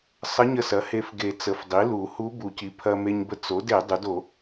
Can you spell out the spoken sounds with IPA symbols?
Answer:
sˤ ə˧˥ ɲ ə˧ s ɐ˩˥ h e˧ f ɡ e˨˩˦ t͡s ə˩˥ f dˤ i˩˥ l u˨˩˦ h u˧˥ b u˨˩˦ c i˩˥ pʰ ɐ˧ m e˧ ɲ b ə˧ t͡s o˩˥ d e˨˩˦ dˤ u˩˥ d o˨˩˦

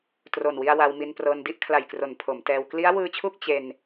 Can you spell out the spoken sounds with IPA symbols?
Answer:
t r o˨˩ n w i˧ a̯ w a˧ w m i˧ n p r ɤː˧ n d i˥˩ ʔ kʰ l a˨˩ j k r o˩˦ n pʰ o˩˦ m t ɛː˧ w k l i˦˥ a̯ w ɯː˧ t͡ɕʰ u˥˩ k̚ t͡ɕ e˧ n

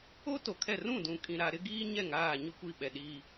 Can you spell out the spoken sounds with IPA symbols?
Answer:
o˦ t o˨ kʰ ɛ˦˨ r ũ˦˨ d ũ˨ kʼ ĩ˨ ɾ a˨ ɾ ɪ˦ ɡ iː˦ ɲ ɛ˦˨ ŋ aː˦˨ ɲ ʊ˦˨ kʷ i˦˨ ɓ ɛ˨ ɗ i˦

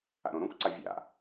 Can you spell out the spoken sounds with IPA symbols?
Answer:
a̰ ɾ õ ɾ õ kʷ ǀ a vʲ a̰

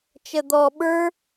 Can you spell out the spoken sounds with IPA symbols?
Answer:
t͡ʃ ə d̪ ɔ ɓ ə˞

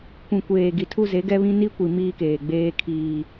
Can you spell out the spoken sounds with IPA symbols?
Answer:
kʷ ĩ˨ kʷ eː˨ ɡ i˨ tʰ u˦ z e˨˦ ɡ ɛ˦ β ĩ˦ n i˦ kʷ i˨ m iː˦ k eː˨ ɡ͡b eː˦ kʰ iː˦

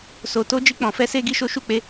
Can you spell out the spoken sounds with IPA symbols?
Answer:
s o˨ t o˧ d͡ʒ i˧ k͡p ɔ̃˨ f ɛ˧ s e˧ ɡ i˦ ʃ o˦ ʃ u˦˨ k͡p e˧

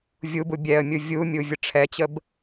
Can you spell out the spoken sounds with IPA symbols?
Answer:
vʲ u b u bʲ ɛ ə̯ mʲ u vʲ u mʲ u vʲ ə ʈ͡ʂʰ ɛ t͡ɕ ə b

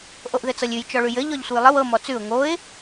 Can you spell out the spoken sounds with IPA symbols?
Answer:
ʔ o ʔ ð ɘ t͡s ɤ lʲ ʉ j t͡ʃ ɔ ɭ ʉ j ɘ ʎ ɔ ʎ sʷ ɘ j lˠ ə w ɤ m ɔ t͡s ʉ ʊ̯ ŋ o ɪ̯

